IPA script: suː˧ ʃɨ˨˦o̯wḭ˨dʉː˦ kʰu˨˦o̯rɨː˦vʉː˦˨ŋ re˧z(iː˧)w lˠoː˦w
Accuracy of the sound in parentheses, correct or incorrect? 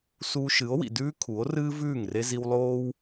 incorrect